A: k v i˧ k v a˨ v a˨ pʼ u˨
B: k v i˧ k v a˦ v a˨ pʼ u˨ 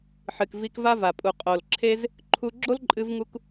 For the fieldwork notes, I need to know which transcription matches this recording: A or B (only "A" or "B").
B